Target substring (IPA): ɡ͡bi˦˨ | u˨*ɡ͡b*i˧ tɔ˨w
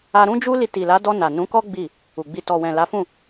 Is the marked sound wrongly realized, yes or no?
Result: no